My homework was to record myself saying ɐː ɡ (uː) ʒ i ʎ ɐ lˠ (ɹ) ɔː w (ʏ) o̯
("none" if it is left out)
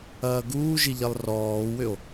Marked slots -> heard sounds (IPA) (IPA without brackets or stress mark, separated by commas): uː, r, ʏ